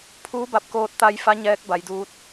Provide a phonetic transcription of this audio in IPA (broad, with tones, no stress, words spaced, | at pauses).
pʰuː˧˥ba˧˩p̚koː˧t̚ t̪a˧j fa˧˥ ɲɛː˧˥k̚ba˩˧jduː˧˥t̚